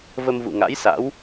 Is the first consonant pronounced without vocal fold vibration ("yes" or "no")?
no